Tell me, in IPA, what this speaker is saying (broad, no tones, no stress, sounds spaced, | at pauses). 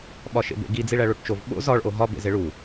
ɓ ɒ ʃ ḛ b ḛ ɡ i d͡z i ɭ æ ɭ o ʈ t͡ʃ o v ɓ o̰ z ɒ ɭ ʔ o ɦ ɒ b ḛ z e ɭ u